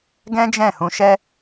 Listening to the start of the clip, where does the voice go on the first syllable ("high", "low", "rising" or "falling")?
high